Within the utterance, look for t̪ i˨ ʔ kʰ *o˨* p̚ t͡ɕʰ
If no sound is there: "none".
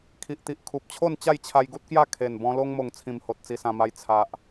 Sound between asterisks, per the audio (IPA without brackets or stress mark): u˨